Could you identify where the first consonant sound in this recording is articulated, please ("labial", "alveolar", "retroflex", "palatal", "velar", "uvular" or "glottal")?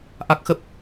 glottal